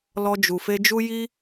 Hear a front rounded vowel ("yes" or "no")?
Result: no